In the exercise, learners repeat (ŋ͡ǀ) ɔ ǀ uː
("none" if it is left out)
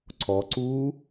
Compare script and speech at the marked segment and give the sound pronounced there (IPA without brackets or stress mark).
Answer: ǀʰ